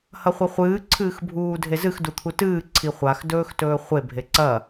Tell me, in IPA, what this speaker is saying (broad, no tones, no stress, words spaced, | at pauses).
hɐχʷɐχʷɨː ǀʰɨːxbʱuːdʱezɨx dut̪ʰutɨː ǀʰiχʷax dɵːxtɵːχʷe bʱeǀɐ